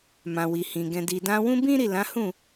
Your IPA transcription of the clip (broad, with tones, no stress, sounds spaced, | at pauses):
m ã˨ w i˨ h ĩ˨ ɡ ɛ̃˨ d i˨ d ã˧ w ũ˦ b ĩ˦ ɾ i˦˨ l ã˨˦ h ũ˦˨